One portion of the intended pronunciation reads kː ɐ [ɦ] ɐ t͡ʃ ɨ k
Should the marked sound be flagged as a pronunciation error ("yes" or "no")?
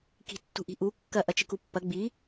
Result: yes